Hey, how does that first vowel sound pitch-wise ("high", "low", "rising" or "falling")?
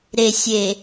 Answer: low